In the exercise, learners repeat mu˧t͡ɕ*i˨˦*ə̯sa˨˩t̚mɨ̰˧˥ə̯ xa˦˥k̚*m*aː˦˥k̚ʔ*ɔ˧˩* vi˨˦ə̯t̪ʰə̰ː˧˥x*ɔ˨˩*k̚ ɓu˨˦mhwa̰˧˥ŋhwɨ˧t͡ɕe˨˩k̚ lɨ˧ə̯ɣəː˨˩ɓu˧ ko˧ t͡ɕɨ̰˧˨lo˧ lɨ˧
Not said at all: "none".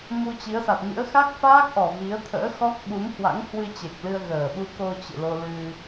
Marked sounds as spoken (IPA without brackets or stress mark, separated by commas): i˨˦, f, ɔ˨˩, ɔ˦˥